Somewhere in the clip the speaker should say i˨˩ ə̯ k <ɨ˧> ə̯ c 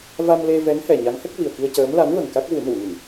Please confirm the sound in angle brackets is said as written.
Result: no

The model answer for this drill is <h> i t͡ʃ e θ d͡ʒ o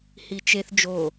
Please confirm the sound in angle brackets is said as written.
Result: yes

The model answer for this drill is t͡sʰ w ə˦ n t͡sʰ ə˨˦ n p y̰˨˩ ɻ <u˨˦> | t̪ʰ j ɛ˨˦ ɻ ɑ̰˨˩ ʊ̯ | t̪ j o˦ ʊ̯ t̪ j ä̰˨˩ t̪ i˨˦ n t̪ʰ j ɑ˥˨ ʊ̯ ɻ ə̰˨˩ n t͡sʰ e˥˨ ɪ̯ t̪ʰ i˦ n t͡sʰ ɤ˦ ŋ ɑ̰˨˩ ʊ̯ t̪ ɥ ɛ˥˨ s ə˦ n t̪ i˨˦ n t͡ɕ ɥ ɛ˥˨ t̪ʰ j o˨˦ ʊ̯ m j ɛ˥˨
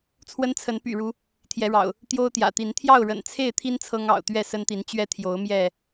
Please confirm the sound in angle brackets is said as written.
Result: yes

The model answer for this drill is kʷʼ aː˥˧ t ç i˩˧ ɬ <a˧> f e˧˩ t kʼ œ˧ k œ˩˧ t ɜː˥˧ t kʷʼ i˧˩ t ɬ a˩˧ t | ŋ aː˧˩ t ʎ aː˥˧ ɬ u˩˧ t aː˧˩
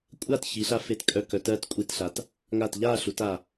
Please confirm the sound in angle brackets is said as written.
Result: yes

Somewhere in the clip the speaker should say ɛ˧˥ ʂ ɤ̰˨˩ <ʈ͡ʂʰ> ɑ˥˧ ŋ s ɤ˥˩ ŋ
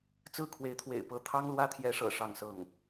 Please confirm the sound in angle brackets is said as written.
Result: no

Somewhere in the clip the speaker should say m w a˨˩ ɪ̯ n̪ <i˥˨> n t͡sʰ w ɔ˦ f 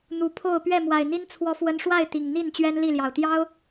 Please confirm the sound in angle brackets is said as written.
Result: no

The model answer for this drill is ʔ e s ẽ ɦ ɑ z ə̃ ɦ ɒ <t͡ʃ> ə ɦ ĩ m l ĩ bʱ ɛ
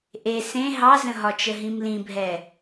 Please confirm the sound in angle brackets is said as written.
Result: yes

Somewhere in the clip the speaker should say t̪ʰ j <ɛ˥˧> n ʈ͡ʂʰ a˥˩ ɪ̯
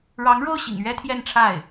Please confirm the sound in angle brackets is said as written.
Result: yes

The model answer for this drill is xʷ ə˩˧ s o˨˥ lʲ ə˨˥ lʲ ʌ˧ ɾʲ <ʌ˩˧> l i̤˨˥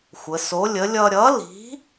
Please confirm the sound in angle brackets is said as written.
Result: no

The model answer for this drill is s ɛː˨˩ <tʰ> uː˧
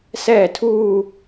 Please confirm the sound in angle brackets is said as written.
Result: yes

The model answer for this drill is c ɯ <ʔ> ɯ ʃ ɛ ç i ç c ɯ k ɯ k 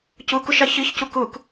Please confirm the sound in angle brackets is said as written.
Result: no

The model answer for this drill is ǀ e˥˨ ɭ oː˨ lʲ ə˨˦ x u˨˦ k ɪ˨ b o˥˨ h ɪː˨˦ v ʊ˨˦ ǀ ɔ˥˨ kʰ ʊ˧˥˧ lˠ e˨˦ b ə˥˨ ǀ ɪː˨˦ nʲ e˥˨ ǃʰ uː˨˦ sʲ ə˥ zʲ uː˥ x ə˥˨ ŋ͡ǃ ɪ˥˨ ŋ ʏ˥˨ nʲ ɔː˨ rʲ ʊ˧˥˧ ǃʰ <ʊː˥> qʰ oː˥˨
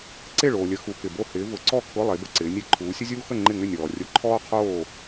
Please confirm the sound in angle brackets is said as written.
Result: no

